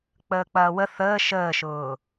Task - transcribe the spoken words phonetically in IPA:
k͡p əː k͡p ɐː w ə θ əː ʃ əː ʃ ʊː

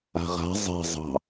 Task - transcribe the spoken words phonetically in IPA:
a̤ ʁ a̤ zˤ ɛ̤ zˤ ɑ̤

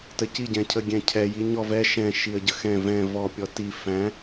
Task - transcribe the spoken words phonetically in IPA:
t ə c i ɟ ɛ̃ cʰ ə ɡʲ ɛ̃ cʰ ɛ j i ɲ ɔ v ɛ ʃ ɛ̃ ʃ i ə̯ ɟ ə x ɛ̃ v ɛ̃ v ɔ pʲ ɔ t i f æ̃

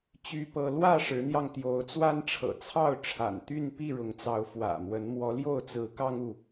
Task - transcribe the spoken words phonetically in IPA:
t͡ɕ y˦ p ɤ˦ l w ä˥˨ ʂ ɻ̩˨˦ n̪ j ɑ˧ ŋ t̪ j o˨˦ ʊ̯ t͡s w a˦ n ʈ͡ʂʰ ɤ̰˨˩ t͡sʰ ɑ˥˨ ʊ̯ ʈ͡ʂʰ a̰˨˩ n t̪ y˥˨ n p i˥˨ ɻ ʊ˨˦ ŋ t͡s ɑ˨˦ ʊ̯ f w ä̰˨˩ m w ə˨˦ n m w ɔ˨˦ l j o˥˨ ʊ̯ t͡s ɹ̩˨˦ k ɑ˦ ŋ u˨

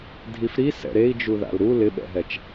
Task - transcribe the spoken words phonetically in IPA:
dʱ i f ɾ i s ɛ̰ ɾ e i̯ d͡ʒ u ð a̰ l ɾ u l ɪ ɓ ɛ̰ ɦ ɛ t͡ʃ

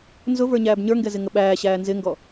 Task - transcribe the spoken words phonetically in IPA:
n z ʊ v ə˞ ɲ æː b ɲ ə˞ ŋ ɡ ɛ z ɪ ŋ ə ɓ æː ɕ æː n z ɪ ŋ ɡ ɔ

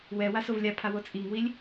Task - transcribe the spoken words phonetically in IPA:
w ɛ w a s o v lʲ a pʰ a w o t͡sʼ i ŋ w i lʲ

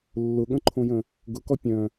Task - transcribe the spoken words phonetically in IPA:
lː ʊ ɠ ə̃ ǃʰ õ j ə̃ | ɡ ʊ k ɔ pʲ œ̃

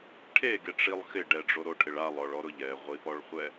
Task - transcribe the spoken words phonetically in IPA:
ʈʰ e ɡ e ʈ͡ʂ i lˠ x ɪ ɖ ɛ ɖ͡ʐ o ɾ o ʈʰ ɪ ɭ a lˠ ɔ ɭ ɔ ɾ ʊ ʎ ɛ ʁʷ i p ɔ ɭ χʷ ɛ

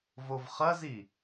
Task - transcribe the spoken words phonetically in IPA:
v o v χ ɐ z i

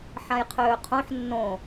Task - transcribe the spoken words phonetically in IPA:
ħ ã j qʰ øː qʰ õ ħ nː õ

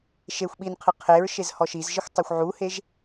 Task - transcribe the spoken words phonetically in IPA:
ʃ e xʷ ɓ i n qʰ ɨ qʰ e ɹ ʃ e z h ɔ ʃ i z ʒ ɘ xʷ tˤ u xʷ ʕ u h e ʒ

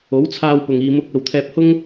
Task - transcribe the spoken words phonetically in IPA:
o˨˥ w t͡sʰ aː˧ w p ʊ˨ ŋ iː˨ m ʊ˧ k̚ ɐ˨ w t̪ʰ ɛː˧ p̚ h ʊ˥ ŋ

